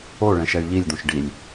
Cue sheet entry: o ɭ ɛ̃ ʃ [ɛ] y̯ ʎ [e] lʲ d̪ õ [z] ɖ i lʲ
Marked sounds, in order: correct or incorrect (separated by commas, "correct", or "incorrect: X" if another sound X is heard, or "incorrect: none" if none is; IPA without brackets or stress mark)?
correct, incorrect: i, incorrect: ʃ